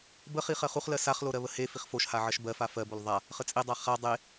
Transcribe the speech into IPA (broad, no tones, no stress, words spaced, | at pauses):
bəχi χɜχuχlɜ saχlo ɾɜβəhefiχ foʃha ʕɜʃbɜfa fɜbol ðˤa | χət͡sʼedˤa χa dˤe